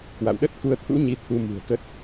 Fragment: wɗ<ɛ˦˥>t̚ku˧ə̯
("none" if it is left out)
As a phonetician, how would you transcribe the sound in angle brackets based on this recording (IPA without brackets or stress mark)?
ə˦˥